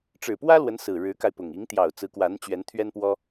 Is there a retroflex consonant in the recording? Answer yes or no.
yes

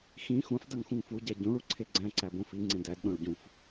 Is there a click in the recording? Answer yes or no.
yes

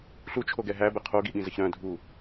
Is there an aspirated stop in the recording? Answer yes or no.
yes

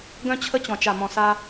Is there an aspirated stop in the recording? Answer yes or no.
yes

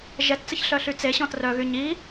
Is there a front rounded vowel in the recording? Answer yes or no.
yes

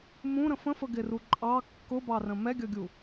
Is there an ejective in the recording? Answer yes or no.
yes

